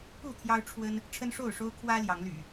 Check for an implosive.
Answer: absent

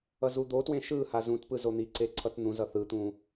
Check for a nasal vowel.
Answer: present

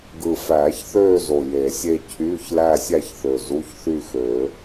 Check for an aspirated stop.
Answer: present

